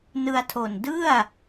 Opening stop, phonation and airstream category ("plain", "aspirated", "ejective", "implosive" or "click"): aspirated